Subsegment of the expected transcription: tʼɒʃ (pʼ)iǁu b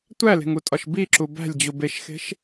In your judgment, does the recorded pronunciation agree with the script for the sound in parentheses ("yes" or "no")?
no